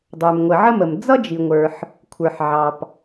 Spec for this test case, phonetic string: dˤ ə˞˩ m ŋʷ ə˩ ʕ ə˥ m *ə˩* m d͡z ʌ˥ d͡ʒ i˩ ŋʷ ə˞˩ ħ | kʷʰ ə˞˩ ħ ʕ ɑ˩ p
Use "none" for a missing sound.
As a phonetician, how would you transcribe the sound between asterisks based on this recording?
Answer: ə˩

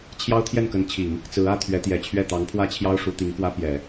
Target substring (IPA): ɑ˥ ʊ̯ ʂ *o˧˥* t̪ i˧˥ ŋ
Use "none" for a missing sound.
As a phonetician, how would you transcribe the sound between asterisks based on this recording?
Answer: u˧˥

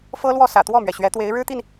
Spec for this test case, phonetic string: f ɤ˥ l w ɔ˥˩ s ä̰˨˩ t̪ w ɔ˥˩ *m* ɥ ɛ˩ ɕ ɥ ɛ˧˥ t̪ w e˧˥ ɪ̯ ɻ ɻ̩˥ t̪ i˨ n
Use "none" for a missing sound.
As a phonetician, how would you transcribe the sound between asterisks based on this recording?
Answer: m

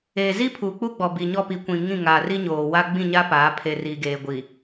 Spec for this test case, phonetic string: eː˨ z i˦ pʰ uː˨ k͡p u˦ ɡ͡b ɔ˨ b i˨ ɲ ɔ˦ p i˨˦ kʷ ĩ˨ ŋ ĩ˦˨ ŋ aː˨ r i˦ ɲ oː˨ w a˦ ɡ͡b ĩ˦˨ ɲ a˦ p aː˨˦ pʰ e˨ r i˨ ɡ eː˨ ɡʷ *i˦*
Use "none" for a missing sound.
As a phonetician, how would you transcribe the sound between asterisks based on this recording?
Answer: i˨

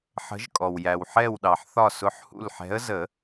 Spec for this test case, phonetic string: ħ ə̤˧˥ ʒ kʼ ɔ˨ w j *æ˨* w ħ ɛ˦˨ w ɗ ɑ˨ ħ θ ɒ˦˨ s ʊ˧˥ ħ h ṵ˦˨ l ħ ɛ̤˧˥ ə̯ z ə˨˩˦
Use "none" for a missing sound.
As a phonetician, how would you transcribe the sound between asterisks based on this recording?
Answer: æ˨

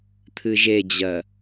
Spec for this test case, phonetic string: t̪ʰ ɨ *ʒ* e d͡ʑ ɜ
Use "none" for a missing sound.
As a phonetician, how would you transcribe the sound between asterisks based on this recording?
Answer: ʒ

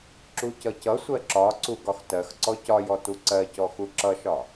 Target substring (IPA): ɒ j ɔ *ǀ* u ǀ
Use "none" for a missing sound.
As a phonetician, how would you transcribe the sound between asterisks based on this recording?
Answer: t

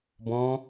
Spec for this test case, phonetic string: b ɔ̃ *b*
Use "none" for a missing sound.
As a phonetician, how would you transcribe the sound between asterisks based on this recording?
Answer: none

